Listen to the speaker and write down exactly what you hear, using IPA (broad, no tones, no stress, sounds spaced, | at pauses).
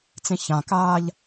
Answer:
t͡s ẽ ç ã k aː ʎ